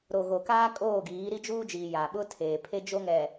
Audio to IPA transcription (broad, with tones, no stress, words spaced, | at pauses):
ɾo˨ ɣo˨kaː˦ kʼoː˦˨ɡiː˨˦ ɾi˦d͡ʒuː˦d͡ʒiː˨ ja˨ɓʊ˦ tʰeː˨pʰe˦ d͡ʒo˦ŋɛ˨